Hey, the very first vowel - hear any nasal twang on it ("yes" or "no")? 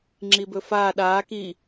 no